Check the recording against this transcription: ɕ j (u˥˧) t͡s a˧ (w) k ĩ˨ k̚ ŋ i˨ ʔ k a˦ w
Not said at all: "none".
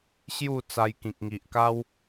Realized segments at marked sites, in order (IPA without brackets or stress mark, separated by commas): u˥˧, j